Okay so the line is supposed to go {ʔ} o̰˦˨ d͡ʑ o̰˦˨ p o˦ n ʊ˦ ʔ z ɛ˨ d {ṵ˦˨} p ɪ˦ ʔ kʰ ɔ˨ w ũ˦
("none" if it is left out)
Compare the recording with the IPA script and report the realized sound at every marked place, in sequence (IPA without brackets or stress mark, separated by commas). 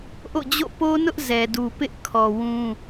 ʔ, u˨